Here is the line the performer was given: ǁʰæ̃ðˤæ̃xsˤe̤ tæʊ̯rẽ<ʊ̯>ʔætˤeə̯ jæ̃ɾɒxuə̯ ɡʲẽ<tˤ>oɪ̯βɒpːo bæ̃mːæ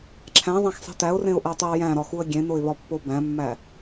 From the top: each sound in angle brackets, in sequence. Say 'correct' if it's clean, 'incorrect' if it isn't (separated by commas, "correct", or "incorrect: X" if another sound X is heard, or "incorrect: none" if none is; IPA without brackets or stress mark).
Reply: correct, incorrect: n